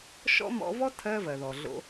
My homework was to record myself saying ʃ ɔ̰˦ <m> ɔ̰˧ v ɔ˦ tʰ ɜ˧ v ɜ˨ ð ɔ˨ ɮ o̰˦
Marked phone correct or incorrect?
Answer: correct